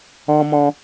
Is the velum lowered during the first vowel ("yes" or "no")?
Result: yes